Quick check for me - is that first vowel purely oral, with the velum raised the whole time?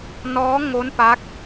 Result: yes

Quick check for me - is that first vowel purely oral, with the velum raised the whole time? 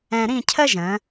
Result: no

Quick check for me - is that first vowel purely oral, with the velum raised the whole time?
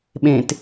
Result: no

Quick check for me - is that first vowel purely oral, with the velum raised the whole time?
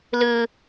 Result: yes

